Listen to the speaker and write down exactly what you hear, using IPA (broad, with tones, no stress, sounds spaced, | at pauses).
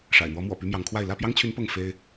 ʂ a̰˨˩ ɪ̯ n̪ w ɔ˨˦ m w ɔ̰˨˩ p y˦ m j ɑ˨˦ ŋ kʰ w a˥˨ ɪ̯ l ä˥˨ p j ɑ˦ ŋ t͡ɕʰ y˨˦ n p ɤ˥˨ ŋ f e˦ ɪ̯